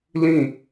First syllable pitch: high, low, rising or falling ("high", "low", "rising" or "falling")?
falling